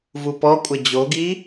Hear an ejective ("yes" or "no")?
yes